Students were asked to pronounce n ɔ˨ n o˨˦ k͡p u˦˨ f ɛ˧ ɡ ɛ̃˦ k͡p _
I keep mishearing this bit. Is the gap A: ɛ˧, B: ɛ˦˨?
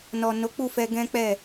B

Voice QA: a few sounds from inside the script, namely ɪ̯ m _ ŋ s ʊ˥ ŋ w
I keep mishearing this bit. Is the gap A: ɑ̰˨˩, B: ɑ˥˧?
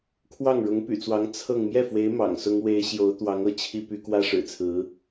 A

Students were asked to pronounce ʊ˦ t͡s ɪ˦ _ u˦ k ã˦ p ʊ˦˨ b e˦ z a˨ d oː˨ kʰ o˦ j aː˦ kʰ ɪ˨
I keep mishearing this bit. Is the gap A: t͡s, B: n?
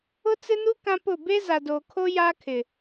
B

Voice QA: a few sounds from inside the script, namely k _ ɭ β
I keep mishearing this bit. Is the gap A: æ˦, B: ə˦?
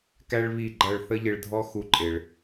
A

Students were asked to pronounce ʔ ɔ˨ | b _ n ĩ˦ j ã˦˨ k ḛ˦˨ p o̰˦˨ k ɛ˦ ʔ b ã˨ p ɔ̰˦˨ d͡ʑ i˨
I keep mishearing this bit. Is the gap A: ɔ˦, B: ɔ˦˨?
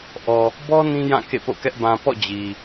A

